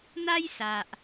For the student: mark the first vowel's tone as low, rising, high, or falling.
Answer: high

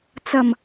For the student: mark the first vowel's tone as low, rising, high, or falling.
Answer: low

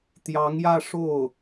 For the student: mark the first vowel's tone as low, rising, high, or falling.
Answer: rising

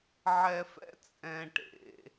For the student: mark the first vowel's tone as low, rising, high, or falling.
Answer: low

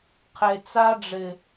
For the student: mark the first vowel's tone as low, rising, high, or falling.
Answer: low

